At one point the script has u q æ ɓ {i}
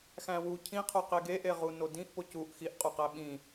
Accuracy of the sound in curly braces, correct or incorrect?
incorrect